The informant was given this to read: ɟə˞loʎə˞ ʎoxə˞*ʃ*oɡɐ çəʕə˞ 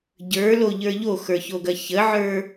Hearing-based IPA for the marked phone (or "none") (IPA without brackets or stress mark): ç